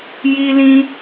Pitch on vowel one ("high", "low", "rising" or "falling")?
high